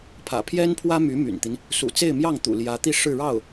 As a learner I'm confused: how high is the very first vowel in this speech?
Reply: low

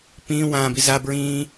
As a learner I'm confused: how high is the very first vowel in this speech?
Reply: high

